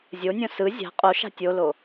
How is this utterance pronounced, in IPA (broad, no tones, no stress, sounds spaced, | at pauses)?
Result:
zʲ o nʲ õ s ɯ zʲ a̤ qʼ o ʃ a̤ tʲ o l o